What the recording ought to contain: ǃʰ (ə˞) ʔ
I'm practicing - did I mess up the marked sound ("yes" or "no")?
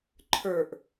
no